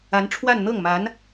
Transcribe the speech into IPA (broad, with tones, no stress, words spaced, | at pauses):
a˧˥nʈ͡ʂʰwa˥˧nn̪ɤ˥˩ŋma˧˥n